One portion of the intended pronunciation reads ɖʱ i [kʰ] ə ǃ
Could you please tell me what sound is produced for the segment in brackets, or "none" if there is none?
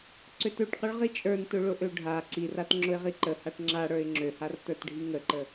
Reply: ŋ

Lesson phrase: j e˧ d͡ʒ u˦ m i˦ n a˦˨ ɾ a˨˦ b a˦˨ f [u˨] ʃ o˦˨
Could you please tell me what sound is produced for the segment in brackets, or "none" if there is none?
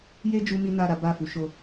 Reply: u˨˦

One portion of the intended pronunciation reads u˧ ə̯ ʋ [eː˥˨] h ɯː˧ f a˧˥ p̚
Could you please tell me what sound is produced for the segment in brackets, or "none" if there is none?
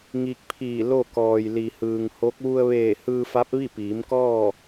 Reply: eː˧˩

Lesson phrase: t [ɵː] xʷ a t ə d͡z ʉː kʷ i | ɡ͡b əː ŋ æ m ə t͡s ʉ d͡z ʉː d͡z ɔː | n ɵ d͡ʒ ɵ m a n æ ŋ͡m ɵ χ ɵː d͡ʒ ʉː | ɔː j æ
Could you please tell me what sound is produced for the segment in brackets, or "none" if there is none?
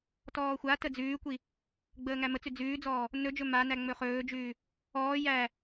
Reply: ɔː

